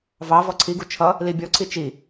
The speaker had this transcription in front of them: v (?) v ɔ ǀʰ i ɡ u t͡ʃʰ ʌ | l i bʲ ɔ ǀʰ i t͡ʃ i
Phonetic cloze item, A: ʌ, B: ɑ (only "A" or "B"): B